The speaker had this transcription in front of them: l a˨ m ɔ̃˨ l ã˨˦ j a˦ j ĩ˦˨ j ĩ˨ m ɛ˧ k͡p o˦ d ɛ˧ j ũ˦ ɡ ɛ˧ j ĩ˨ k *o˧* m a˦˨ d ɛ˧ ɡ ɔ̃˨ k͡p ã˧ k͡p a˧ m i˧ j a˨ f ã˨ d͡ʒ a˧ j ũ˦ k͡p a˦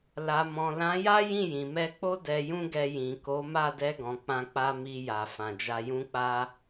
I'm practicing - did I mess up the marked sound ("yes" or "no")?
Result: yes